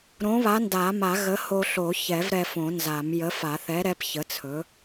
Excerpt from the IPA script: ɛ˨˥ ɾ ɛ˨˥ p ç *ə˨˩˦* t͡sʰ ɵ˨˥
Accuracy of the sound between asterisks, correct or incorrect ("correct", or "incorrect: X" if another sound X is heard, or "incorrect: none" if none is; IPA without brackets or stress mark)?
incorrect: ə˨˥